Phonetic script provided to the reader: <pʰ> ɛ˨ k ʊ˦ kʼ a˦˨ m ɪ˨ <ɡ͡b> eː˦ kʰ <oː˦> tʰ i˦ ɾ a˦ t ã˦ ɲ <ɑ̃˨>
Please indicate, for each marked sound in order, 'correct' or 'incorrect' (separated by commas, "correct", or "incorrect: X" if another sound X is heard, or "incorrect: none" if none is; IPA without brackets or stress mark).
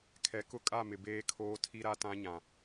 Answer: incorrect: kʰ, incorrect: b, correct, incorrect: ã˨